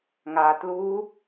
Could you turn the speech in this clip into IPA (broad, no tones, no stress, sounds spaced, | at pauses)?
ŋ a t l u